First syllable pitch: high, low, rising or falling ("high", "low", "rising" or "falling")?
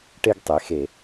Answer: high